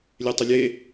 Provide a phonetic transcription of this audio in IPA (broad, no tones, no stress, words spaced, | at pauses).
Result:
lʲetˤəlʲe